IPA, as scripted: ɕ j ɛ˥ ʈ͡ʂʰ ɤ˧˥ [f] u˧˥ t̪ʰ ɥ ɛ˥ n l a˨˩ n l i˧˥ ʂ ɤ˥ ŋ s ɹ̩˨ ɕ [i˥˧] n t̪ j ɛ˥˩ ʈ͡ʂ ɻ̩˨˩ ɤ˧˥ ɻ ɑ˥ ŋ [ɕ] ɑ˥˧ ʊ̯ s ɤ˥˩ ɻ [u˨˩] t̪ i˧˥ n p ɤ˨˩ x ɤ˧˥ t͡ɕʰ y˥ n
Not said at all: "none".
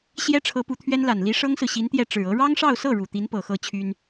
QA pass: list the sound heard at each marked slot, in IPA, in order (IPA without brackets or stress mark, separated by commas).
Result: p, i˧˥, ʂ, u˨˩